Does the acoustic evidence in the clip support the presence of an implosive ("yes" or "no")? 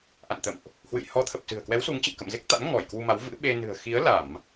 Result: yes